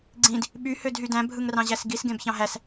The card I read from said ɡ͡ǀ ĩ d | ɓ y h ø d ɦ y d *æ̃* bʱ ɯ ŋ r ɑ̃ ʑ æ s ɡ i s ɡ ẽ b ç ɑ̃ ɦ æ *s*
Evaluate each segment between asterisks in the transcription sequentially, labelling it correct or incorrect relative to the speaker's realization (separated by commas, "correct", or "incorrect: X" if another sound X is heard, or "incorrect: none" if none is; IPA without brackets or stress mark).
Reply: correct, correct